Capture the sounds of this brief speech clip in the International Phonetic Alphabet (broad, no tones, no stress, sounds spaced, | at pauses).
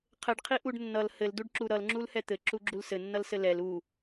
qʰ ɘ ɖ qʰ i ʔ u ɖ nː ʌ l h ɘ l d u ɖ ǁ u ɾ ʌ l ŋ͡ǁ u l h ɛ t̪ ɘ ǁ u ɡ͡ǁ u l s ɘ nː ʌ l s ɘ l ɛ l u